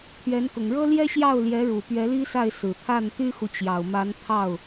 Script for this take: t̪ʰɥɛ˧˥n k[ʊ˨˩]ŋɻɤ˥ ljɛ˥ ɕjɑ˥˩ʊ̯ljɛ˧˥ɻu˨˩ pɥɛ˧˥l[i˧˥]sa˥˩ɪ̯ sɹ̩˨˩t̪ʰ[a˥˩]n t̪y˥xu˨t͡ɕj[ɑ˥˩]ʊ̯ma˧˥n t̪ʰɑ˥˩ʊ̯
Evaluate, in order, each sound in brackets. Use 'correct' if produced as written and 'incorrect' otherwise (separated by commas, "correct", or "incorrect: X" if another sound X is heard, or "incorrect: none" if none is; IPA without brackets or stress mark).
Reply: correct, incorrect: i˥, correct, incorrect: ɑ˨˩